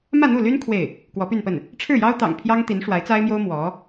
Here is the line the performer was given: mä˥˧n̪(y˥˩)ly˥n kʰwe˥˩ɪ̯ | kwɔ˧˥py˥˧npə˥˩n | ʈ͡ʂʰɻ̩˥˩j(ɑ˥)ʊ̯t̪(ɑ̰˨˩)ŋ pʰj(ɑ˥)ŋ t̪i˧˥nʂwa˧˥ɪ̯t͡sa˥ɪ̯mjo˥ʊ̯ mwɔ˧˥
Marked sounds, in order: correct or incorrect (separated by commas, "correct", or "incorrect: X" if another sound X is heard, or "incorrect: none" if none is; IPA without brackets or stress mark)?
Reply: incorrect: u˥˩, correct, correct, correct